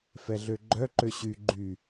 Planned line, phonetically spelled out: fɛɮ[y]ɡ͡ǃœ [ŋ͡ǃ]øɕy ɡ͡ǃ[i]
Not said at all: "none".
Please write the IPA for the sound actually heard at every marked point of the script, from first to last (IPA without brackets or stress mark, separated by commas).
ø, ǃ, y